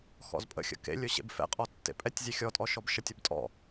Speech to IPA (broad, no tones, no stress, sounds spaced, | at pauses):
x ɔ̰ z pʼ ə̰ xʲ ə̰ k ḛ lʲ ɵ ɕ ḛ b f ɛ̰ qʼ ɔ tː ḛ pʼ ɛ tʲ zʲ e xʲ ɔ tʼ ɔ ʃ ɔ b ʃ ə tʲ ə b tʼ ɔ̰